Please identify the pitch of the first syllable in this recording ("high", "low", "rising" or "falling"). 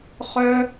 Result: high